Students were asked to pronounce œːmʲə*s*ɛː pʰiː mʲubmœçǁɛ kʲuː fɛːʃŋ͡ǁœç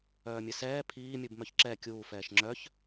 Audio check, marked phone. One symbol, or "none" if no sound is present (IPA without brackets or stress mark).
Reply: s